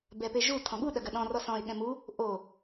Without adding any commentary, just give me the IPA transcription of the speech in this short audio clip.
b ɛ p e ʒ u tʰ ɔ̃ ɠ u ɗ ɐ ɡ ɐ ɗ ɔ̃ r ɔ s ɔ̃ ɪ̯ ɠ ɛ̃ m u | ʔ o

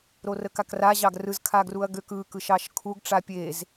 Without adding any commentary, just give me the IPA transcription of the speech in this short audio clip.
ɾ o r ə k a k r a ʑ ɑ ɡ r ɯ z kʰ a ɡ r u ɐ̯ ɡ ø k ɯ k ɯ ʃ ɑ ʃ kʰ u ɡ ʈ͡ʂ a pʲ e z

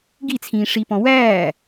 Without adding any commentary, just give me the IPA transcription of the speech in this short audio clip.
ɡ i t͡sʰ ĩː ʂ i p ɔ̃ w æː

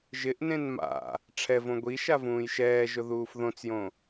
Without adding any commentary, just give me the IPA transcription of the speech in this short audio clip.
ʒ ɪ ʔ n ẽ n m a̰ | ʈ͡ʂʰ ɛ v õ ɡʷ i ʃ a v ũː j ʃ ɛː ʒ ʊ ð uː f ð õ t͡s j õ

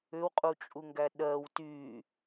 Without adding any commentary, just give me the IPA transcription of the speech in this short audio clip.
ʏ w qʼ u t͡ʃʼ u ŋ ɡ æ ɗ ɜ w t y

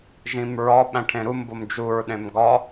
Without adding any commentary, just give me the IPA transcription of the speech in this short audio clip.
ʒ ĩ m ɹ ɒ ɓ æ̃ ʈʰ ẽ ɾ u m b o m d͡ʒ u ɹ ɗ ẽ m ɡ ɒ

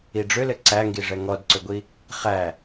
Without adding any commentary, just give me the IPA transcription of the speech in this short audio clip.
i ɖ͡ʐ ʏ l ɘ ǀ æ ŋ ɡ i ʐ ɛ ŋ ɔ d ǀ ʏ ɡʷ i | χ æ

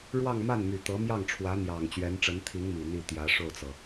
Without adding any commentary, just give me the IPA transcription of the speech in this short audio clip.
ɻ w ɑ˥˧ ŋ m a˥˩ n m y˨˩ t̪ ɤ˧˥ m j ɑ˥˩ ŋ ʈ͡ʂʰ w ä˧˥ n̪ j ɑ˨˩ ŋ t͡ɕ ɥ ɛ˧˥ n ʈ͡ʂ ə˧˥ n t̪ʰ i˧˥ ŋ m i˨˩ n̪ i˥˩ t̪ j ä˧˥ ʂ o˥˩ ʊ̯ t͡s ɤ˩

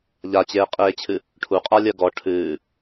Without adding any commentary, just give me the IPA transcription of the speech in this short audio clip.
ʎ a t͡ɕ eː qʼ eː t͡ɕʰ ɨ | ʈʰ u qʼ a lʲ ɜ ɡ ɔ ʈʰ ɨː

